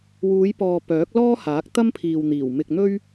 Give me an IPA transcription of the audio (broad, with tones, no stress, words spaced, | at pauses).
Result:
wuː˨˧jpɔː˨ pœː˨˥k̚lɔː˥haː˨˥k̚ t̪ɐ˥mpʰiː˨wn̪iː˨˩w mɪ˨k̚ n̪ɵ˥ɥ